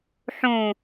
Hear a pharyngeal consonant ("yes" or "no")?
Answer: yes